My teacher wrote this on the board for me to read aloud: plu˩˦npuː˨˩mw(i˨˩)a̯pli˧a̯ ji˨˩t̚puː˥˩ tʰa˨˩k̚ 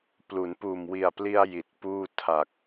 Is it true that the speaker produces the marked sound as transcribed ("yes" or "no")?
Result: yes